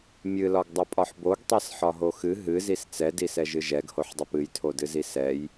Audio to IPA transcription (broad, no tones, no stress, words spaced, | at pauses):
mʲɨlɒɡdˤɨpʼɒħ boɡtˤɛsħɒɦo xɨ ɦɨzis t͡sɛdisɛʒɨ ʒɛɡhoħdˤop ɨjtʰodɨzi sɛj